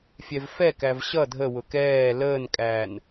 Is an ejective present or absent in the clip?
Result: present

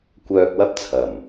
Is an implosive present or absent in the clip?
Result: absent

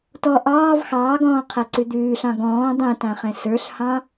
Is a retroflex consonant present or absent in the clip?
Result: absent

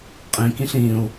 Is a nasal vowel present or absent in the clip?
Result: present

